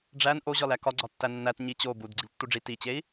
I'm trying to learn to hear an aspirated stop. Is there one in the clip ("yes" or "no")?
no